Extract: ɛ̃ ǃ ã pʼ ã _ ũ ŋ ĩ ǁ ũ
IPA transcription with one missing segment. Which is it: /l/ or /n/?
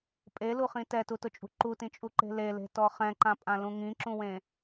l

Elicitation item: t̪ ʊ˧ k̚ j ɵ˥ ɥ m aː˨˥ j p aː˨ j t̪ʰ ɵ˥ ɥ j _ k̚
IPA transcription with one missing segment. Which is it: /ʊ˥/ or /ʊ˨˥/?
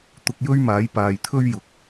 ʊ˨˥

